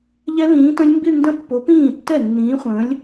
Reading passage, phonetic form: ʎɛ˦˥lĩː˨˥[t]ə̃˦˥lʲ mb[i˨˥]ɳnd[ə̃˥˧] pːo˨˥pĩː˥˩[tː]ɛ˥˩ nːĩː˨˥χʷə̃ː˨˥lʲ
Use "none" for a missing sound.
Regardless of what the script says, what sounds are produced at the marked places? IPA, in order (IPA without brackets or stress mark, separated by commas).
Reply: t, i˥˧, ə̃˥˧, tː